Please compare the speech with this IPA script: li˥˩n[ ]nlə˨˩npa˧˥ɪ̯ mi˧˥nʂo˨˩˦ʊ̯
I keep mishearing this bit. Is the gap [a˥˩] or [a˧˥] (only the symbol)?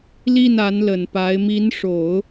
a˧˥